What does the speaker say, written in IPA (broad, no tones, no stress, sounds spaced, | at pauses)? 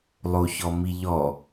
lˠ o ç ɔ m i ʎ ɔ